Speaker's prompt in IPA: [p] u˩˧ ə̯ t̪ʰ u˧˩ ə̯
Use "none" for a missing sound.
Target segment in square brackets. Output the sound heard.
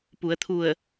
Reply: p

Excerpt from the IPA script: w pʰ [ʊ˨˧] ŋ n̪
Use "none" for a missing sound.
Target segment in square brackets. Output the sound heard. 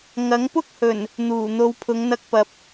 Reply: ʊ˨˧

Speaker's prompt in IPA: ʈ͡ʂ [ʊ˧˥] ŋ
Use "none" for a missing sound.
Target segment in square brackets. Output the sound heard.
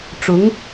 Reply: ʊ˧˥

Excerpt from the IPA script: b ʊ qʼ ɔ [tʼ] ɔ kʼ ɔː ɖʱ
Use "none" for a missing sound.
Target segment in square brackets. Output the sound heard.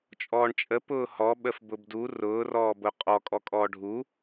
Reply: kʼ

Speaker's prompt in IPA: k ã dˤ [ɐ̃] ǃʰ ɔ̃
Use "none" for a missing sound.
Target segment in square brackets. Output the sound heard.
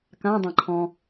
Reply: ɐ̃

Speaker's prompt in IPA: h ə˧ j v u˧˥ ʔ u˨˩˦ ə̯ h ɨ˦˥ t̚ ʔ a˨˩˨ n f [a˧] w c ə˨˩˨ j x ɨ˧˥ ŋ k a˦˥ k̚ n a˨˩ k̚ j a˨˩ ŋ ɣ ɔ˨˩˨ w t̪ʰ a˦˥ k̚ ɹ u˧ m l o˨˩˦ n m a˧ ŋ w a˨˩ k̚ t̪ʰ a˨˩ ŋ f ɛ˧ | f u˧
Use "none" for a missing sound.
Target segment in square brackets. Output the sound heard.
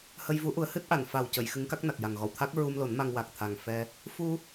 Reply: a˨˩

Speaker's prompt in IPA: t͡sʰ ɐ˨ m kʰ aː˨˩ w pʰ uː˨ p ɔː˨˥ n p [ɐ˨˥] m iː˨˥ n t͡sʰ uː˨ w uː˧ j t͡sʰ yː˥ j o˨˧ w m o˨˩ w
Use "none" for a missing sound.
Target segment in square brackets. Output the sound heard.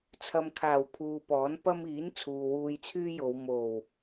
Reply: ɐ˥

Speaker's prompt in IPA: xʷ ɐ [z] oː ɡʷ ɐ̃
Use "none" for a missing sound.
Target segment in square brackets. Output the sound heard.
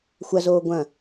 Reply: z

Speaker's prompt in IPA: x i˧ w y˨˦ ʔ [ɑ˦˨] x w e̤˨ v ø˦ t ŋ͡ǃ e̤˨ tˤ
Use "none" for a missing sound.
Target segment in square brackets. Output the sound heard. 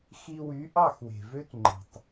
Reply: ɑ˦˨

